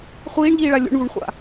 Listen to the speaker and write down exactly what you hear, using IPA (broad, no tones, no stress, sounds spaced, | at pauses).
χʷ iː ɳ ʎ iː ɭ a lʲ ṵ ɳ v u ɳ χʷ a̰